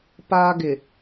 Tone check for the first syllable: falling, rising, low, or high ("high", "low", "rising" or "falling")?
high